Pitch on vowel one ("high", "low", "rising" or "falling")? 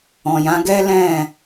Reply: low